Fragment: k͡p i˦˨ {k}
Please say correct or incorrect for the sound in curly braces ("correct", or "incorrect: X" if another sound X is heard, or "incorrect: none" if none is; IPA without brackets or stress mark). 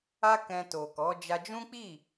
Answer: incorrect: none